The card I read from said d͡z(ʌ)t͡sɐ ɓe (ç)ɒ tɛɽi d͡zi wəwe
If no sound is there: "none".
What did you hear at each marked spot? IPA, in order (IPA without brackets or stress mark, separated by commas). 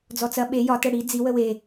ɔ, j